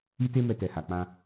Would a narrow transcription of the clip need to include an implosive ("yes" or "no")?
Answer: no